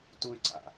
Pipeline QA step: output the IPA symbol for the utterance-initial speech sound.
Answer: t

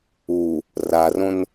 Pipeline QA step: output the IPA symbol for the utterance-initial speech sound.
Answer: u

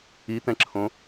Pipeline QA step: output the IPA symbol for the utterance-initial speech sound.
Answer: i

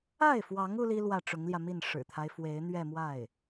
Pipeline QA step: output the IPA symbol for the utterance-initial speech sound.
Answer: a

